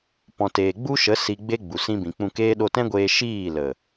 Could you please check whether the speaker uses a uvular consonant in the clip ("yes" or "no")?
no